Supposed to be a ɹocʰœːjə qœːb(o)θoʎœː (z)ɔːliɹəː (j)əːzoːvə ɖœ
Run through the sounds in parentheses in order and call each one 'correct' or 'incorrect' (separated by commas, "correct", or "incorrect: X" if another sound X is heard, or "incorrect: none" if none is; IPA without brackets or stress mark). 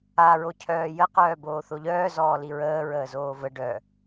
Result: incorrect: oː, correct, incorrect: ɹ